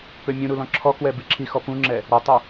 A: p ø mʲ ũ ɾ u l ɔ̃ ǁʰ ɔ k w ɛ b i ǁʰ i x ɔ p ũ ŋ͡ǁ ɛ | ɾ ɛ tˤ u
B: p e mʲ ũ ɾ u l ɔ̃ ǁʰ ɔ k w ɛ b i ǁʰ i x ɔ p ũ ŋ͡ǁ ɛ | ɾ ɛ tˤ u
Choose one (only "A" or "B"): A